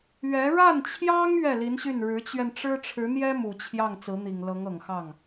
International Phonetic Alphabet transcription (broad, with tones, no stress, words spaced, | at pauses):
ɥɛ˧˥ ɻa˥˩nt͡ɕʰjɑ˥ŋ ɥɛ˥˩li˧˥nɕy˥˩n ɻɻ̩˧˥t͡ɕɥɛ˧nʈ͡ʂɻ̩˥ ʈ͡ʂʰɻ̩˧˥n̪jɛ˥ mu˨˩t͡ɕʰjɑ˥˩ŋ t͡sɹ̩˧˥n̪i˨˩ŋlɤ˧˥ŋ ɤ˨˩ŋxɑ˥˩ŋ